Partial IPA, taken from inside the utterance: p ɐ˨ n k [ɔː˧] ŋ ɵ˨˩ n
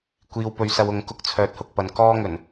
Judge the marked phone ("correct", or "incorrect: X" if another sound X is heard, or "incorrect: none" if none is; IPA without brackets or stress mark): correct